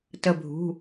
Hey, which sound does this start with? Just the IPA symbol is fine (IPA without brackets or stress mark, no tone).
t